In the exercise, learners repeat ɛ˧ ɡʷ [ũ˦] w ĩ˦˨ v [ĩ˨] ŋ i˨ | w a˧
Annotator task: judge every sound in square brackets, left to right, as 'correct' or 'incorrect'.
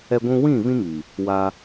incorrect: ũ˧, incorrect: ĩ˦

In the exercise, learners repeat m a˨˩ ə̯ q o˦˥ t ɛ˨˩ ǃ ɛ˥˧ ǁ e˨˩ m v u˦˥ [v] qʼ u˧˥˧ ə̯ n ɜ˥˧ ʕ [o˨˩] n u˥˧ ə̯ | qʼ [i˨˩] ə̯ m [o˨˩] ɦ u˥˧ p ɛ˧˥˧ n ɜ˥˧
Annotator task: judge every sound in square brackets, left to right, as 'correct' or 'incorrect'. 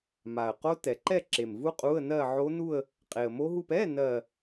incorrect: none, incorrect: o˦˥, incorrect: e˨˩, incorrect: o˦˥

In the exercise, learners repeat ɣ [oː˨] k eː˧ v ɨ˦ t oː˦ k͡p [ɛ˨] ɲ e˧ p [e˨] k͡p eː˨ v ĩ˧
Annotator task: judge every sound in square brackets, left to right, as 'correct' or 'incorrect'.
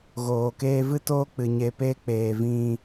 correct, incorrect: ɨ˨, incorrect: e˦

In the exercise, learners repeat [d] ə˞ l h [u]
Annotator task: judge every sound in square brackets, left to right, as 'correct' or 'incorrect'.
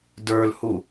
correct, correct

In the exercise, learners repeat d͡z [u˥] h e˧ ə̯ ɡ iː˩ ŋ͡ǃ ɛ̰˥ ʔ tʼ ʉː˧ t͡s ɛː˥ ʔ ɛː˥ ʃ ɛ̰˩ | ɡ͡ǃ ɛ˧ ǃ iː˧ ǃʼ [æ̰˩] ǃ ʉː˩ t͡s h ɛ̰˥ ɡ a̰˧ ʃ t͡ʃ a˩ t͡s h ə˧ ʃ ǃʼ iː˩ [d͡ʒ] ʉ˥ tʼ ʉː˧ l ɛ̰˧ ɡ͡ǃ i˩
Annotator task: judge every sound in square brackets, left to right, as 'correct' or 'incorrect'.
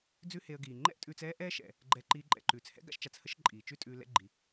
incorrect: ʉ˥, incorrect: ɛ̰˩, incorrect: t͡ʃ

